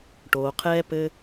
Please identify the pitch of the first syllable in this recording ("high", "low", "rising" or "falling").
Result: low